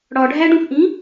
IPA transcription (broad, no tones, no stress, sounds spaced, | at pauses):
ɽ ɒ ɖʱ æ ɖ ũ x ʔ ĩ